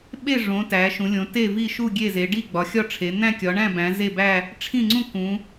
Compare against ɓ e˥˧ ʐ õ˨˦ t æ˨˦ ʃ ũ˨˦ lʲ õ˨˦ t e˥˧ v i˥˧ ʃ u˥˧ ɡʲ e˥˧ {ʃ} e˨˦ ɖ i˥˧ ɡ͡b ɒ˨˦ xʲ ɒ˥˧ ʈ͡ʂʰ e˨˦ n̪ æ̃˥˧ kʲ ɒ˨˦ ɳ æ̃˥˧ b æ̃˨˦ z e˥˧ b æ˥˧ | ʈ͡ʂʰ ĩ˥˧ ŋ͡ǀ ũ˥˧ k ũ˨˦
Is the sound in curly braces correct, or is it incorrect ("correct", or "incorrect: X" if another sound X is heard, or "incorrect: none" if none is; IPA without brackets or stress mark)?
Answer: incorrect: z